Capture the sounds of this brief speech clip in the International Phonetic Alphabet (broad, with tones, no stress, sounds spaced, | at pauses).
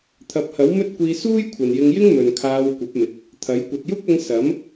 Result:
t̪ʰ ɐ˨˥ p̚ h ɐ˨˥ w m ɵ˥ t̚ kʷ iː˧ s uː˥ j kʷʰ ɐ˨ n j ɪ˧ ŋ j ɪ˥ ŋ m ɵ˨ n kʰ aː˧ w kʷ ɐ˨˥ p̚ m ɪ˨ k̚ | t̪ʰ ɐ˨˥ j kʷ ɐ˨ t̚ j ʊ˥ k̚ ɐ˧ ŋ s ɐ˨˥ m